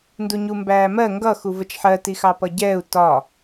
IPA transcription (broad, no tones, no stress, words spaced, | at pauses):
nduɲumbæːmɜ ŋɡʌ xuvət͡ʃħɜ tixɑpʌɟɛːu̯ tɒ